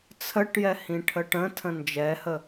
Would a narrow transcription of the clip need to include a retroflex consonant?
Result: yes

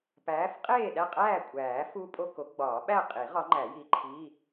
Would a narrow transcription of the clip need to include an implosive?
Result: yes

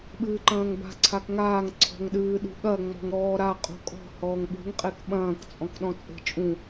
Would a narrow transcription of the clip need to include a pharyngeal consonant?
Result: no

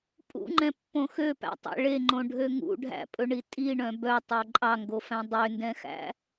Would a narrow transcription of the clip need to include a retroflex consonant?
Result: yes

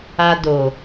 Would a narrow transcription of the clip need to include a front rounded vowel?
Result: no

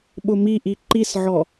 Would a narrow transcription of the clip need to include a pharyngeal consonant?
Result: yes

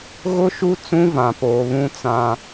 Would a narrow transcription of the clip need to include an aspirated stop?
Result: no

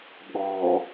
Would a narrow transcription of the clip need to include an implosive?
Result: yes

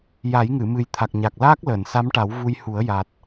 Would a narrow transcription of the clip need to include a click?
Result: no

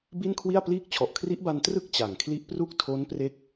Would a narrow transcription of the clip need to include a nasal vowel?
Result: no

